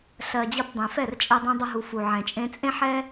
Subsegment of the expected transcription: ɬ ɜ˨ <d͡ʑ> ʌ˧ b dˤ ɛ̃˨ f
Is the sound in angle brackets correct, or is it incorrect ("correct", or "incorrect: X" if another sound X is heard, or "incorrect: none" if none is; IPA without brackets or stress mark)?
correct